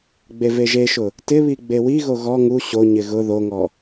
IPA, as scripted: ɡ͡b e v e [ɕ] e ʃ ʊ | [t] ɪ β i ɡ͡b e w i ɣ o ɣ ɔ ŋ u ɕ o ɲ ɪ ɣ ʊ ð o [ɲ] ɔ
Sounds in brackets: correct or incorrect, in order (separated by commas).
incorrect, correct, incorrect